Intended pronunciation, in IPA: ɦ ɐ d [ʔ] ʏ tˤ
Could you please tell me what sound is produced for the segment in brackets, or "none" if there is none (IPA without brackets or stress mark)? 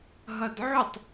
ʕ